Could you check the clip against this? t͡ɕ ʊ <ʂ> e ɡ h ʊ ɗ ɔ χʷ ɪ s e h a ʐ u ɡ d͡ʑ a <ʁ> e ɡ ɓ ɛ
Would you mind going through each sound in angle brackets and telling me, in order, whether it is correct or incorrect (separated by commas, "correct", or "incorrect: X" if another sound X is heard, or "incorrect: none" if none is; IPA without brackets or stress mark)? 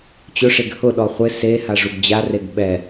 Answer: correct, incorrect: r